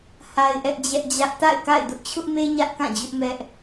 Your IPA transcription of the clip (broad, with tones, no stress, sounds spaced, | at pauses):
h a˦ ɪ̯ ʔ ɛ˦ ʔ d͡ʑ ɛ˦ ʔ d͡ʑ ä˦ ʔ t a̰˦˨ ɪ̯ k a̰˦˨ ɪ̯ d ʊ˦ ʔ t͡ɕʰ ʊ˦ ʔ m e˦ ɲ ä˦ ʔ k ã˦˨ d͡ʑ ʊ˦ ʔ m ɛ˦ ʔ